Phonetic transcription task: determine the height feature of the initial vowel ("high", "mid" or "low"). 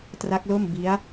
low